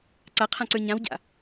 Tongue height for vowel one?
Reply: low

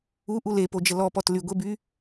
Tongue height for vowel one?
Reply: high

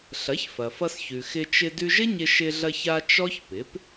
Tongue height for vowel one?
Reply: low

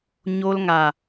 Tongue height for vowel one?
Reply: mid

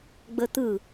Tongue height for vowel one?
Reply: mid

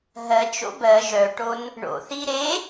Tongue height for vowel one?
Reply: mid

